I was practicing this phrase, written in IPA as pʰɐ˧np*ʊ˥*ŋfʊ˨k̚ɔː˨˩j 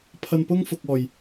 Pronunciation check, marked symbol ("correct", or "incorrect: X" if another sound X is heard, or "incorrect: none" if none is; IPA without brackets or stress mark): correct